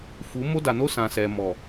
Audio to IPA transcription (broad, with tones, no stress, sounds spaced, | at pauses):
f u˨˦ m o˦ d a˨ n o˦ s ã˨ s ɛ˨ m ɔ˨